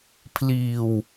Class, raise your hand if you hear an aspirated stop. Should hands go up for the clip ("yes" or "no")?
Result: yes